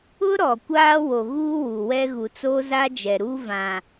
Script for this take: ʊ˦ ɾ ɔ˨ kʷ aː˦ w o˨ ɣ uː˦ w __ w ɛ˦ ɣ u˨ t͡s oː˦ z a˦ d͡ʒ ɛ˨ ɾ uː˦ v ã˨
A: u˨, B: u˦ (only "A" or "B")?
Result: A